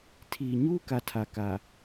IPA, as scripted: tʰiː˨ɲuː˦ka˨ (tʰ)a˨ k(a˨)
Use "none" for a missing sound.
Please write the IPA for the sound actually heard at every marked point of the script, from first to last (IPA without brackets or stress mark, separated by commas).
tʰ, a˨